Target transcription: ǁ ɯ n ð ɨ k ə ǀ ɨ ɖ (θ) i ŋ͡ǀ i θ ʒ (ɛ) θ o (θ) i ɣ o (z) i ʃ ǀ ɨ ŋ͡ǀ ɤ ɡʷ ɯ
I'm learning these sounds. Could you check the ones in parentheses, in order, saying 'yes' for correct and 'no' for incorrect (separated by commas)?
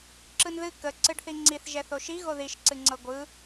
yes, yes, no, no